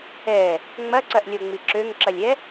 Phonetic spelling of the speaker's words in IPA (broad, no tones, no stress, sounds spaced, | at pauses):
ɛ | ŋ͡m ɐ ǀ ɐ ʔ lʲ o ŋ͡m i ǁ ø ŋ ǁ ɐ lʲ ɛ